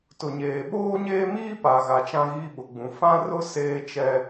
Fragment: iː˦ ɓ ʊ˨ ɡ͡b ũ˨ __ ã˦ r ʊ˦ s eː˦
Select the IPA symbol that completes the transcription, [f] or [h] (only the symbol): f